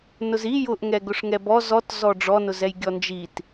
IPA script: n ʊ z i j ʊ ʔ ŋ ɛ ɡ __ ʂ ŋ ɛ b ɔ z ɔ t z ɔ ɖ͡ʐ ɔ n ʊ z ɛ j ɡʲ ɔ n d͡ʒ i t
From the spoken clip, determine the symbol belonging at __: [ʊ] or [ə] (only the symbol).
ʊ